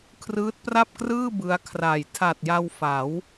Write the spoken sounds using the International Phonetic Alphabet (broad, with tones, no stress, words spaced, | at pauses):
kʰrɯː˦˥t̚pra˥˩p̚krɯː˥˩ bɯ˦˥a̯kʰra˨˩j tʰa˨˩t̚ja˧w fa˩˦w